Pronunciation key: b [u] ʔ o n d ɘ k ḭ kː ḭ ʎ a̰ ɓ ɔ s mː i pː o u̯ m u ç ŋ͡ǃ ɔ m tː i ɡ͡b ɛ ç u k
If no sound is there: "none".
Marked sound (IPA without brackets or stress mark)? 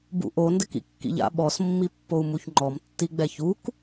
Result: ṵ